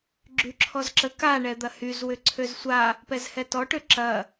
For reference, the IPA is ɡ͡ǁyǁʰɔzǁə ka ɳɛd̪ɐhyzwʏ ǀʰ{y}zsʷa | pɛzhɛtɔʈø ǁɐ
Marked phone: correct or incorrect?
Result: incorrect: ø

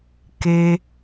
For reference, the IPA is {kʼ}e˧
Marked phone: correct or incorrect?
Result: incorrect: k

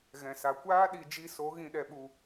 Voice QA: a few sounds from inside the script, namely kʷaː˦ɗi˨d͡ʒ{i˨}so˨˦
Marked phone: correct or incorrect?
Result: incorrect: i˧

